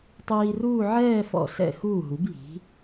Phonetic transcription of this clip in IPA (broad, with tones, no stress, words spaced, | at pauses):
tˤiː˧ruː˥˧ ʕɛː˥˧fɔ̰˧˩ ɬɛ̰˧˩ xuː˧˩ɦu˩˧b ji̤˩˧